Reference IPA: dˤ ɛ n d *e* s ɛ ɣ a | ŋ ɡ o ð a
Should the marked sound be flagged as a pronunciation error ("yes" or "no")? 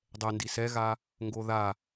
yes